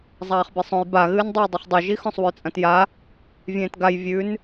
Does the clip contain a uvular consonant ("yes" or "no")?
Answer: yes